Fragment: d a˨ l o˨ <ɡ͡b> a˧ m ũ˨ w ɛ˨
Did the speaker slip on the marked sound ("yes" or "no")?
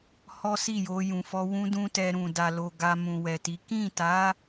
yes